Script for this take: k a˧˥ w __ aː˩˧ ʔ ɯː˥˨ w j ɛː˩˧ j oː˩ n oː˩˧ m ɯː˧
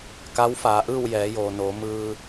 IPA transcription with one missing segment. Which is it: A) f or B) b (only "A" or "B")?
A